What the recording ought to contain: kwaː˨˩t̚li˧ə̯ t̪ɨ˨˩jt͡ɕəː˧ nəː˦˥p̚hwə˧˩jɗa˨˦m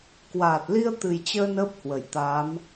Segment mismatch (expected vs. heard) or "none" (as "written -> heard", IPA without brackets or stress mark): ɗ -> t̪